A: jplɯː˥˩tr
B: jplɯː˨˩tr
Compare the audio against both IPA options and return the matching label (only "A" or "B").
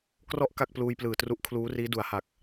B